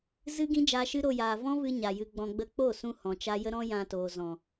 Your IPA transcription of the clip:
z ɨ˦ ɡ ĩ˦ d͡ʒ aː˧ ʃ ɨ˦ ɾ o˧ j aː˨ v ɔ̃˦ v ɨ˧ ɲ a˨ j ɨ˧ ɡ͡b ɔ̃˧ ɡ͡b ə˧ k͡p o˦˨ s ũ˧ h ɔ̃˨ t͡ʃ a˦ j ə˦ ɾ ɔ̃˦ j ã˧ t oː˨ z ɔ̃˨

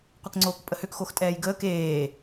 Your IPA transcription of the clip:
qʷ ɛ k ŋ͡ǀ oː k pʼ ə h ø k x o x tʼ ɛː j ɡ əː k eː

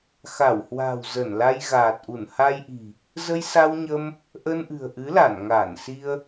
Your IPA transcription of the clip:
x a˧˩ w h w a̤˨˩ w z ə˧˩ n l a˧ j ɣ aː˨˩ t̚ ʔ u˧˩ n h a˧ j ʔ i̤˨˩ | z ə˧ j s a˧ w ɲ ə˧ m | ʔ ə˧ n ʔ ɨ̤˨˩ ə̯ ʔ ɨ˨˦ l a˧˩ n ŋ a˧˩ n s i˧ ə̯

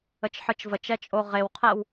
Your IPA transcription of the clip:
ə t͡ʃ ħ ɯ t͡ʃ v ə t͡ʃ ɛ t͡ʃʼ o ʁ e w qʰ ɛ w

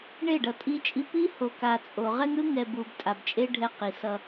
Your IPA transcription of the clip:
ɳ e˦˨ ɖ ʌ˨ tʼ i˦ t͡ʃʼ i˦ p i˦ h o˨ k a˨ t͡sʼ o˨ ʁ ɛ˦ ŋ ɾ ɯ˦ ŋ ɛ˨ b u˨ b tʼ a˨ b t͡ʃʼ e˦ ɖʱ ɛ˦ q i˨ s ʌ˦

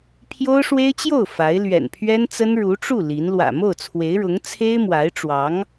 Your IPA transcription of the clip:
pʰ j o˥ ʊ̯ ʂ w e˥ ɪ̯ t͡ɕ j o˥˩ ʊ̯ f a˧˥ ɪ̯ l ɥ ɛ̰˨˩ n pʰ ɥ ɛ˥ n t͡s ə˥ n ɻ u˧˥ ʈ͡ʂ u˥˩ l i˧˥ n l w ä̰˨˩ m o˥˩ ʊ̯ t͡sʰ w e˧˥ ɪ̯ ɻ ʊ˧˥ ŋ t͡sʰ e˥ ɪ̯ m w a˧˥ ɪ̯ ʈ͡ʂ w ɑ˧˥ ŋ

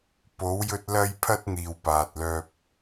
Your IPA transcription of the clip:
p o˨˧ w j ɵ˧ t̚ l ɐ˧ j pʰ ɐ˧ t̚ n̪ iː˨ w p aː˨ t̚ l œː˧ p̚

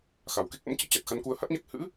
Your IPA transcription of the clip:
x a˨˩ w k e˦˥ k̚ ʔ ə̰˧˥ m t͡ɕ ḭ˧˥ t͡ɕ a˨˩ t̚ x a˧ n k u˧ ə̯ h a˦˥ t̚ ɲ a˦˥ k̚ h ɨ̰˧˥

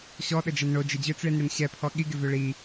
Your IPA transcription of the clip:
ɕ ɔ ɗ ə d͡ʒ ɐ n ɳ o d͡ʒ ɪ d͡ʑ ø t͡s ɭ i n ɽ ɪ n ɕ ɛ pʰ ɔ ɠ i ɡ ɪ v ø ɭ i

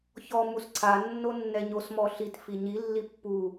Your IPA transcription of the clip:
ç ɔ m u s ǀʰ a nː o nː ɛ ɲ o s m ɔ ɬ i t f i ɲ i lː i pː u

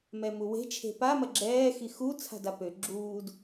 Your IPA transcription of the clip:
m ɛ m u w e̤ t͡ʃʰ e̤ p a m ɐ ɡ͡ǁ ɛː x i x u t͡sʰ a̤ d a p ø ɡ͡ǁ uː d

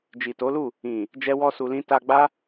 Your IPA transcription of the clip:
d͡ʒ i˨ t o˨˦ l u˦˨ | ĩ˨ | d͡ʒ ɛ˦ w ɔ˦ s u˧ l ĩ˦ t a˧ ɡ͡b a˦

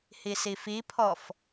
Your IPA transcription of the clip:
h i s i f i pʰ ɔ f

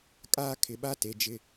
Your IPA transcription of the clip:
kʼ aː˦ kʰ ɪ˨ ɓ a˦ t e˨ d͡ʒ ɪ˦

